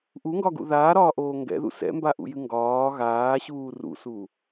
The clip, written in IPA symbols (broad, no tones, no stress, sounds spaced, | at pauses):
ʔ u ŋ ɡ ɒ ɡ ṵ ð aː ɾ ɒː ʔ oː ŋ ɡ ɛ̰ ð ṵ s ɛ̰ m b a ʔ ṵ j ɨ ŋ ɡ ɒː ɣ aː ɕ uː r ṵ s u